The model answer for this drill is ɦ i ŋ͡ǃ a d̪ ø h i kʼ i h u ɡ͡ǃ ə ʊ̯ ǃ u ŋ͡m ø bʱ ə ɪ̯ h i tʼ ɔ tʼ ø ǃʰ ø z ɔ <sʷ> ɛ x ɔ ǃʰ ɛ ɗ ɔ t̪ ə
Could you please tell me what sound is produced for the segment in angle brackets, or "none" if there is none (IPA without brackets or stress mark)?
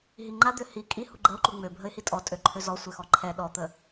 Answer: sʷ